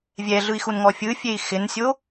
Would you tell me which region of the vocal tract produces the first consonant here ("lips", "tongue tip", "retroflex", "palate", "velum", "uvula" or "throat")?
lips